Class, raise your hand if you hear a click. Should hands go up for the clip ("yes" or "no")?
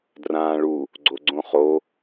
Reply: yes